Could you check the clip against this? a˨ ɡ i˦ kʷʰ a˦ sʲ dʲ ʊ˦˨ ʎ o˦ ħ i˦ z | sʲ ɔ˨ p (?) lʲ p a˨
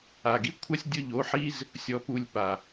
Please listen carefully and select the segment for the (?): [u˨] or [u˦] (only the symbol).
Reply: u˨